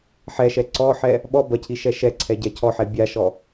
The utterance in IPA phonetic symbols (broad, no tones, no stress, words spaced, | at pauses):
ħɛʃɛ ǀɔħɛ | ɓɔ bɐcʰi ʃɛʃɛǀʰɛ ɟɛcʰɔħɛ bʲaʃɔ